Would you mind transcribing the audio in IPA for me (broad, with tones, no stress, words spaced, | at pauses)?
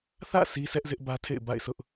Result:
θä̰˦˨ si˦sʰɛ˦ʔzɪ˦ʔ bä˦tʰḛ˦˨ɪ̯ba̰˦˨ɪ̯sʊ˦ʔ